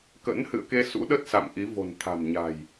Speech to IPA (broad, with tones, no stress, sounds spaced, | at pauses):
k ə̰˧˥ n h ɨ̰˧˨ ə̯ k e˧ s ṵ˧˥ ɗ ə˦˥ t̚ s a̰˧˨ m ʔ i˨˦ v o̤˨˩ n t̪ʰ a̤˨˩ m ɲ a̤˨˩ j